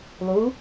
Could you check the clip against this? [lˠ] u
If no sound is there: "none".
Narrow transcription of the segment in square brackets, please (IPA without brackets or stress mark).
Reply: lˠ